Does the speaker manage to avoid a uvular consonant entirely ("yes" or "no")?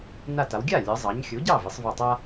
yes